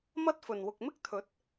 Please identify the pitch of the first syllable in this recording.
high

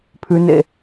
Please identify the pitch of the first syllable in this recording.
low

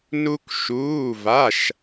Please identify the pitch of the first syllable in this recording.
high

